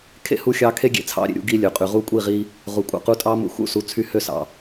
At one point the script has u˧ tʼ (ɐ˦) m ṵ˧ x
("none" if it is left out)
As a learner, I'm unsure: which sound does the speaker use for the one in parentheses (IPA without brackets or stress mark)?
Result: ɑ˦